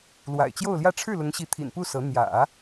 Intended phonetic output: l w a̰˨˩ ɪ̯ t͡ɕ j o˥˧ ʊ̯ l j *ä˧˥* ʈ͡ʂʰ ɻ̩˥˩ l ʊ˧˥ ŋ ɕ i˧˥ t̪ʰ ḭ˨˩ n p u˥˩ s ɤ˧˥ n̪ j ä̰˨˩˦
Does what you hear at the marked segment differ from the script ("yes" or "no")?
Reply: yes